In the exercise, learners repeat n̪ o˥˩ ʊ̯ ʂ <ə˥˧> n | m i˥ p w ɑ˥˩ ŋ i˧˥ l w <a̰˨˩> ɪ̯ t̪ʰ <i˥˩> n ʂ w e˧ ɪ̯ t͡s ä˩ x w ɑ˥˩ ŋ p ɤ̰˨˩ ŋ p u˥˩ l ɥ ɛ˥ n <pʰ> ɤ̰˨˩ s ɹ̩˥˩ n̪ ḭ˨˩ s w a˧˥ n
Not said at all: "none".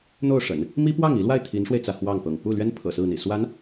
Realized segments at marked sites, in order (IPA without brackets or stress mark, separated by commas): ə̰˨˩˦, a˥˩, i˧˥, pʰ